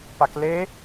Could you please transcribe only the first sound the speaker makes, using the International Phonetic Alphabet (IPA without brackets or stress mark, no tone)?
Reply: p